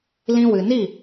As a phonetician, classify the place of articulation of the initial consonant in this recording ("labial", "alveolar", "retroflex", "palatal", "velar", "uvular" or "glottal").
alveolar